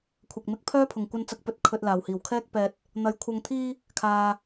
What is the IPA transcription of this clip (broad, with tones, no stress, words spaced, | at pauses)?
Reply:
kʷʰɐ˨k̚ mɪ˧k̚pʰœː˥pʰʊ˨˩ŋ kʷɐ˧nt͡sɐ˨˥k̚pɵ˨˥t̚ kʰɵ˧t̚laː˨˩whiː˨˩w kʰɛː˥k̚ pɛː˧t̚ | n̪ɐ˨jkʷʰɐ˧ŋt̪ʰiː˥ | kʰaː˧